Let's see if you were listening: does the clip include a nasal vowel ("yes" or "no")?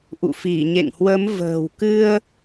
no